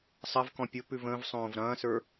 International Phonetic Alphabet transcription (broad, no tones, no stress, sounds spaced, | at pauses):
sˤ ɐ v k ɔ̃ pʲ o p ʉ v ə̃ː v sˤ õː v ɾ ɐ̃ː s ə˞